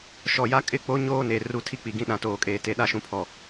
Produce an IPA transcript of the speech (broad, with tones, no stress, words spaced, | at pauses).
ʃɔ˨ja˦ kʼɪ˦˨ k͡po˦ ɲoː˦ne˨ ru˦tʰi˦k͡pi˨ ɡĩ˦ɗã˨toː˨kʼeː˨ te˨ɗa˦ʃũ˨pʰɔ˨